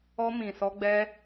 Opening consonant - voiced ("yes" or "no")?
yes